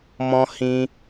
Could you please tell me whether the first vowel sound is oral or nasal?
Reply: nasal